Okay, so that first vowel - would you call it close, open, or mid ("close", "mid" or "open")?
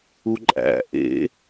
close